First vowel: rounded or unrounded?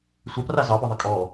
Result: unrounded